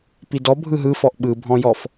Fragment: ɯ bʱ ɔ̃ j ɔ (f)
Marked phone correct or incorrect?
correct